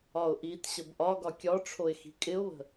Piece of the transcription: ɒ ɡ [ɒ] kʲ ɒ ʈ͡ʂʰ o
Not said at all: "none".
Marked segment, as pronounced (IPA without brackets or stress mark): ɒ